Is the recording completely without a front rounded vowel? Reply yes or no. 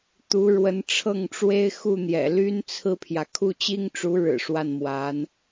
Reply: no